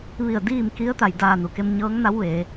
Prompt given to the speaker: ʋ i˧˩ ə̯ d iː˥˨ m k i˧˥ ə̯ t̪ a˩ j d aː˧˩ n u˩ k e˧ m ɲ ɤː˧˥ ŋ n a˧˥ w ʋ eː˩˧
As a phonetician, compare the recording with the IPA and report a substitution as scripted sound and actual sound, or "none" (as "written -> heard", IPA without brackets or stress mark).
none